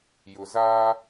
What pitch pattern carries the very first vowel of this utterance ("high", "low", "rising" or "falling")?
low